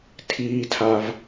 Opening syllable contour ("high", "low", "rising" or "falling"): low